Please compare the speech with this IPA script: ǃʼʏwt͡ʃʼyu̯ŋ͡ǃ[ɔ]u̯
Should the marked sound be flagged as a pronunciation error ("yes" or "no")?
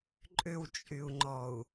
no